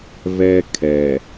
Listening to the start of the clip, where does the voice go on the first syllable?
high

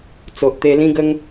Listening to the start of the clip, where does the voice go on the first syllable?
low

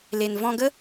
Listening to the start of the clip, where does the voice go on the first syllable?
low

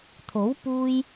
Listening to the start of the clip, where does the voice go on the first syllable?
rising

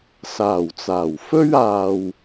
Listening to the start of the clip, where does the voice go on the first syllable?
low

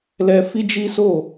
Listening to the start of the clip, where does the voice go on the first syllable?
high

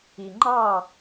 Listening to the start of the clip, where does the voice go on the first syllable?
low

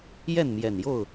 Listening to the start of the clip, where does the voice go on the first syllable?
falling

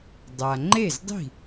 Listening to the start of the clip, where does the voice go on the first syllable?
low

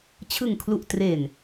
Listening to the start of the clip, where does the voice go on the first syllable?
low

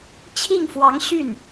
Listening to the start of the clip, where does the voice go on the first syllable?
falling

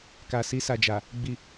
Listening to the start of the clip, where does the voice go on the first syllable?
low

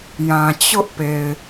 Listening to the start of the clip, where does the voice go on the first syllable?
low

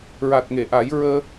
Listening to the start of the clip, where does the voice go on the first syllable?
low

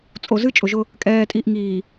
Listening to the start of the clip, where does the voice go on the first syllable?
low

